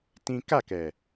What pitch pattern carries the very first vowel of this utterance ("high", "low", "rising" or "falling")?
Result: high